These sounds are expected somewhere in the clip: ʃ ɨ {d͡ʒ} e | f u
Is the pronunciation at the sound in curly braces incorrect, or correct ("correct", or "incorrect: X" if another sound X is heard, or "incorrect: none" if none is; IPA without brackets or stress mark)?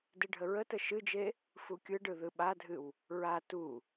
correct